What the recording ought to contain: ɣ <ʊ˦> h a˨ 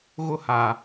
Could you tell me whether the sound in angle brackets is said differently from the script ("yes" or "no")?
no